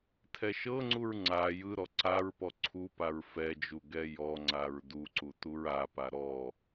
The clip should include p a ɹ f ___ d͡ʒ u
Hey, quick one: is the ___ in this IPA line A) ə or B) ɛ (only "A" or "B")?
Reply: B